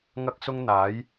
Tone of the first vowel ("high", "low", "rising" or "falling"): high